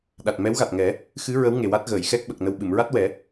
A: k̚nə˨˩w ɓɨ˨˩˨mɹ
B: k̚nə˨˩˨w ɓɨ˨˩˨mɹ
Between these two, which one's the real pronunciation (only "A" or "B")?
A